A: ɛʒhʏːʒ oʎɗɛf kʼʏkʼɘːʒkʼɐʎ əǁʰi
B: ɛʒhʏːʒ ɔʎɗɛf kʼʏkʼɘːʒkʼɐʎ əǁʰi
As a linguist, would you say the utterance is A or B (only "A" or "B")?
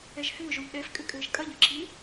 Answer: A